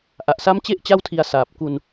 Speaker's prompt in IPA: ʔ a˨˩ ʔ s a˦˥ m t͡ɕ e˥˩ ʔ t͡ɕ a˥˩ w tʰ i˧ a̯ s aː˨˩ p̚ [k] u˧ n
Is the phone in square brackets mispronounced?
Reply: no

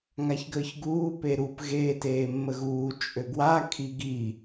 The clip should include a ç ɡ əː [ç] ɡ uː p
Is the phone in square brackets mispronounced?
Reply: no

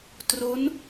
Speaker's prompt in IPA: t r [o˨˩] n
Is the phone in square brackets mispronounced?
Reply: yes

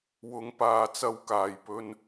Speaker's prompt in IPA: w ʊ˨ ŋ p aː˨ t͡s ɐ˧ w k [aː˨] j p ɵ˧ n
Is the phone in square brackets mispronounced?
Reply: no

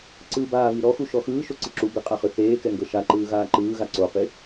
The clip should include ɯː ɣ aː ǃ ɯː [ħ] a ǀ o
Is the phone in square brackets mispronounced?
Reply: yes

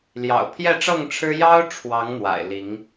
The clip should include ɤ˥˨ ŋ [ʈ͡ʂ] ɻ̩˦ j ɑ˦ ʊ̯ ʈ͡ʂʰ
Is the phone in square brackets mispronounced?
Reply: yes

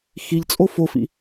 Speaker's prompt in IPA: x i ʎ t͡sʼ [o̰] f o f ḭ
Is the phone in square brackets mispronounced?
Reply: yes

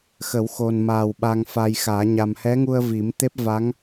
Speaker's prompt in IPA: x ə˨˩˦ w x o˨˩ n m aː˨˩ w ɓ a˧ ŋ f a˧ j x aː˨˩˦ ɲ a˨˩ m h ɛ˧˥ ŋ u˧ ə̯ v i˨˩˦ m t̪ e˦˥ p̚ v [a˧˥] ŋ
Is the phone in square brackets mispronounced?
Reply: no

